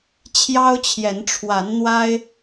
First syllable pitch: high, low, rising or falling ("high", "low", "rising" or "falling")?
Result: high